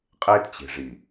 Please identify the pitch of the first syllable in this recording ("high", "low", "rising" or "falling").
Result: high